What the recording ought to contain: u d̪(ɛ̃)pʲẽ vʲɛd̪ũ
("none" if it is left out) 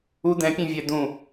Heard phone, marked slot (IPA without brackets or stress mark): ɛ̃